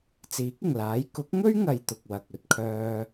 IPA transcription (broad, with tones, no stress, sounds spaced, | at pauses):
t͡s iː˨˥ k̚ ɪ˨˩ ŋ l aː˨˥ j k ʊ˨˥ k̚ ŋ ɵ˥ ɥ ŋ ɐ˨ j t̪ ʊ˨ k̚ w ɐ˨ k̚ ɵ˨ t̚ kʰ œː˧